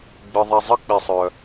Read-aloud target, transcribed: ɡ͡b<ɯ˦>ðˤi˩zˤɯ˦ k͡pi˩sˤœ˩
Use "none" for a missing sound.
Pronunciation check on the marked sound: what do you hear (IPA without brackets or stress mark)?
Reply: ɯ˩